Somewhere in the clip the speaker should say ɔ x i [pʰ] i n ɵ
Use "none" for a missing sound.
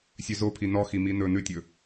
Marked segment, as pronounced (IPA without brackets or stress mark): m